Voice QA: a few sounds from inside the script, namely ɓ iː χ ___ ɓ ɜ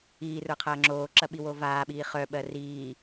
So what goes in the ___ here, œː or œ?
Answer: œ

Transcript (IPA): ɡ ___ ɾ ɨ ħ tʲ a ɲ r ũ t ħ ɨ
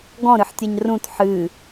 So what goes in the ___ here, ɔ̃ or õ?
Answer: ɔ̃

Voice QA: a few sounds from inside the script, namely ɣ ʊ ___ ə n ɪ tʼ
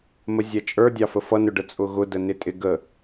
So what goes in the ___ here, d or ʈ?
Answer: d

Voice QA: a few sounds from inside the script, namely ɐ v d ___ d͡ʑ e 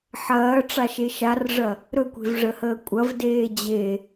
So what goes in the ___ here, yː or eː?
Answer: eː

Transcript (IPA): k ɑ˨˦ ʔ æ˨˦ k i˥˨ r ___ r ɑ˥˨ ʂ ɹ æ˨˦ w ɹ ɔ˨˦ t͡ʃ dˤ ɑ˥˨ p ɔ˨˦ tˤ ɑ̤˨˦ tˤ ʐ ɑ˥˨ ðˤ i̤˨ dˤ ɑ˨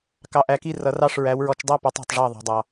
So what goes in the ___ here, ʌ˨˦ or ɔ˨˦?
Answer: ʌ˨˦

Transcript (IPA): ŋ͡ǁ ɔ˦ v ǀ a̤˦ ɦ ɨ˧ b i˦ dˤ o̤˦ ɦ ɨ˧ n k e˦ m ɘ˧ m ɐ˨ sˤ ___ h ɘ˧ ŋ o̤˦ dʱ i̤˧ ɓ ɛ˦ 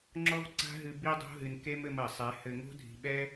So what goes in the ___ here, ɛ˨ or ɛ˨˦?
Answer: ɛ˨˦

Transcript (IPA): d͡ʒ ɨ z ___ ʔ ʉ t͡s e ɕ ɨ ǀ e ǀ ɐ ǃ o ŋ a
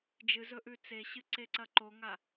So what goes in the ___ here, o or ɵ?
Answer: ɵ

